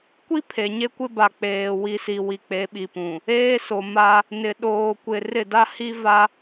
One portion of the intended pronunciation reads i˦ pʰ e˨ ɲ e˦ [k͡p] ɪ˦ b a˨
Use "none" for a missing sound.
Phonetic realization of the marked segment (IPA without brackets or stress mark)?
kʷ